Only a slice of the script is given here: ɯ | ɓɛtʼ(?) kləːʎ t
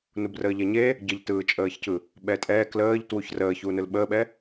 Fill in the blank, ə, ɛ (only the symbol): ɛ